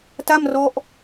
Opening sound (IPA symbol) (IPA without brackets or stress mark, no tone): t